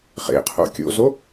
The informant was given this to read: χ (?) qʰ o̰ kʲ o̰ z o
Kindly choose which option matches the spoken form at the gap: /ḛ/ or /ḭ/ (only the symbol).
ḛ